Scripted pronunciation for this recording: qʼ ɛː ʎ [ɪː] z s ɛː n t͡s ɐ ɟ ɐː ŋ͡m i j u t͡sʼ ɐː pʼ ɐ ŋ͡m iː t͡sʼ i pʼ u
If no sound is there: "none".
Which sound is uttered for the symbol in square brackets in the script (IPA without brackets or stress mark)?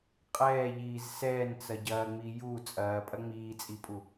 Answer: iː